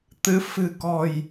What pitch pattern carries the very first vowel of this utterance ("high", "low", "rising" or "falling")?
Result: rising